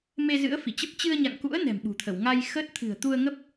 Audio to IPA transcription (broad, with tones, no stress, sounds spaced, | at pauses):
m e˧ z ɨ̰˧˥ ə̯ f i˧˩ t͡ɕ ə˦˥ p̚ t͡ɕ ɨ˧ ə̯ ɲ a̰˧˨ ŋ k ṵ˧˥ ə̯ n ɛ̤˨˩ m ɓ ṳ˨˩ t̪ʰ ə˧˩ w ŋ a˧ j x əː˦˥ t̚ t̪ʰ ɨ̤˨˩ ə̯ t̪ u˧ ə̯ ŋ ə˦˥ p̚